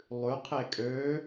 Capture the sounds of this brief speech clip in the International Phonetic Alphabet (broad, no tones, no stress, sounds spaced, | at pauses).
lˠ ʉ qʰ e kʼ ø